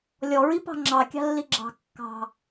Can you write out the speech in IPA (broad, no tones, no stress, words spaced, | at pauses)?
lʲɔɹipɑ̤ ŋ͡ǁɑkʲɑ̤lːi ɡ͡ǁɑ̤ kːɑ̤